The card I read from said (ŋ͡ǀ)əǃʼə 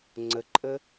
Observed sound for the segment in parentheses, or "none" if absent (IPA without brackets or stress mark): ŋ͡ǀ